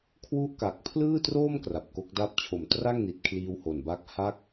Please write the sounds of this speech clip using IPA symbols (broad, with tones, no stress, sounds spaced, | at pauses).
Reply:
kʰ w u˥˩ ʔ k a˨˩ k̚ pʰ l ɯː˥˩ t r oː˥˩ m k r a˨˩ p̚ k o˦˥ k̚ d a˥˩ p̚ t͡ɕʰ o˨˩ m t r a˥˩ ŋ n i˨˩ t̚ kʰ l iː˧ w h o˨˩ n b a˦˥ k̚ h a˥˩ k̚